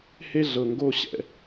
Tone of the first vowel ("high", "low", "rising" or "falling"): high